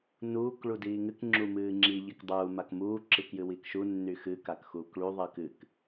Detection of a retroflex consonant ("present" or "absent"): present